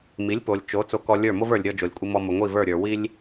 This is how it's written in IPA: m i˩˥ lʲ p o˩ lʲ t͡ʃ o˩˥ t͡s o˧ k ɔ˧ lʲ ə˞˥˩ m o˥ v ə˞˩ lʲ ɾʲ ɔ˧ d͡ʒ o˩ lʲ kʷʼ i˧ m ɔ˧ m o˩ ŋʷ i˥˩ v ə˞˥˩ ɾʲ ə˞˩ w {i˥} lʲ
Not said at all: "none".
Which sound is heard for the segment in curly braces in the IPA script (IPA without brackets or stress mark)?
i˥